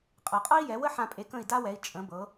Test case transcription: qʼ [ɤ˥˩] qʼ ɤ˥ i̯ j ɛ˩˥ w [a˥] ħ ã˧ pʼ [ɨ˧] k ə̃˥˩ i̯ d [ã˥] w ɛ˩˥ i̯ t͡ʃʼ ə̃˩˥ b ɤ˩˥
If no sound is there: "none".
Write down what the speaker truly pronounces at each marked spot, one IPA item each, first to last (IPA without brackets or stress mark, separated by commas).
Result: ɤ˩, ə˥, e˧, a˥